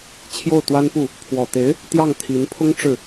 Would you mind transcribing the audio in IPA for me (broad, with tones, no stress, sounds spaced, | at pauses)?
t͡ɕʰ j o˥˩ ʊ̯ t̪ w a˥ n p u˥˩ | pʰ w ɔ˨˩ t̪ e˧˥ ɪ̯ | t̪ j ɑ˥˩ ŋ t̪ʰ i˧˥ n pʰ ʊ˥ ŋ ʈ͡ʂ ɻ̩˥˩